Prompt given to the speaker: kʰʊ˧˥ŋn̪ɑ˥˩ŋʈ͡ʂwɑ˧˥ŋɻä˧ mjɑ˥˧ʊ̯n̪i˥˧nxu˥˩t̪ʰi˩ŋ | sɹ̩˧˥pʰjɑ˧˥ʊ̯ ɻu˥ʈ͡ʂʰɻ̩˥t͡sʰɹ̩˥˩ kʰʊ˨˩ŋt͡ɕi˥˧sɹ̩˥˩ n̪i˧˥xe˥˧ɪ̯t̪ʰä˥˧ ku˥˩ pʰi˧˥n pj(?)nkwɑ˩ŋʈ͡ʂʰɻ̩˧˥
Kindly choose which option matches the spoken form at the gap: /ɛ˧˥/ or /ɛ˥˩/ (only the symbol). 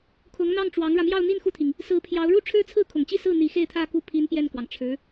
ɛ˥˩